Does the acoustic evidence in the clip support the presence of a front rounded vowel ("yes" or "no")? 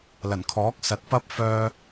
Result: yes